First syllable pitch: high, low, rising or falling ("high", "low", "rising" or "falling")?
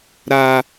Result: high